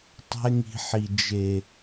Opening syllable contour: high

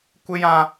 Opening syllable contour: high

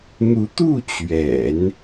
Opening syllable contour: rising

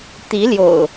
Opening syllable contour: rising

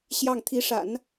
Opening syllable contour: falling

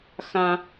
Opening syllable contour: high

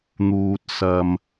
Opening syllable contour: low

